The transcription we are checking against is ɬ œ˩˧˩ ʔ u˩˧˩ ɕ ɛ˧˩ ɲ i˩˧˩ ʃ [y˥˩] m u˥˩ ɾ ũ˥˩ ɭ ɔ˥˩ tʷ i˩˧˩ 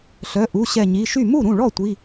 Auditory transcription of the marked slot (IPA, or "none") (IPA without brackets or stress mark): y˥˩